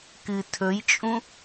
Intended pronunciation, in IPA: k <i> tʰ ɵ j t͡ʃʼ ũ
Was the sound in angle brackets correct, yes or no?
no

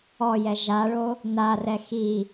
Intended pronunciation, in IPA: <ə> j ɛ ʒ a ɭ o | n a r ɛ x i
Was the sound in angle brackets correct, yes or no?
no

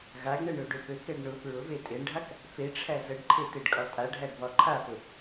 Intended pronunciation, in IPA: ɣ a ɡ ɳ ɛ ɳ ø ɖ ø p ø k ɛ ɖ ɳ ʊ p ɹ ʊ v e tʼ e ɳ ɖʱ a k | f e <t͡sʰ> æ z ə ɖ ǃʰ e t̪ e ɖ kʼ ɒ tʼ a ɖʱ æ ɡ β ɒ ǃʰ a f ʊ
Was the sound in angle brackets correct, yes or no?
no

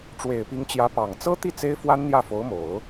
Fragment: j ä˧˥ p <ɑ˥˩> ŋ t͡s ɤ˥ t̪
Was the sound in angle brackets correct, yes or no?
no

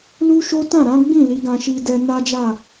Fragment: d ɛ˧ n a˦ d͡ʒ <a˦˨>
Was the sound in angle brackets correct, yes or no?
yes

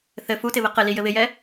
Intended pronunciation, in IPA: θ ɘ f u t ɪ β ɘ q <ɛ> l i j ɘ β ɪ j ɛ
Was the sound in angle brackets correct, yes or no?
no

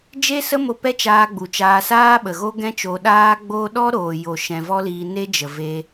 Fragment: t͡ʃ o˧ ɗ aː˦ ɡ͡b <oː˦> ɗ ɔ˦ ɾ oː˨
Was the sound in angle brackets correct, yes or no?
yes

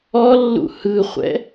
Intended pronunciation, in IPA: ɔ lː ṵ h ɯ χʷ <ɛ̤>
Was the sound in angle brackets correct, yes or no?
no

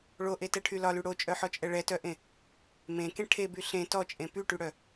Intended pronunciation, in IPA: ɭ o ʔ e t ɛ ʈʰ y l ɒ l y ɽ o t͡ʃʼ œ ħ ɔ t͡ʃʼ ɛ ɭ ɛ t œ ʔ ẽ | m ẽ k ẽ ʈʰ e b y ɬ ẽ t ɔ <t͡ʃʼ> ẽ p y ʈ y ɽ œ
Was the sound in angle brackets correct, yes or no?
yes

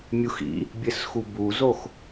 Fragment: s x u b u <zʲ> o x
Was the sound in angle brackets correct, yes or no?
no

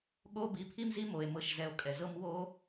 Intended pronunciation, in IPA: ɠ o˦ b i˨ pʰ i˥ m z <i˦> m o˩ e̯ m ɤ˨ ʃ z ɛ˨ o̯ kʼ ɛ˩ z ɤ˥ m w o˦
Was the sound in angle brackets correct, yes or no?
yes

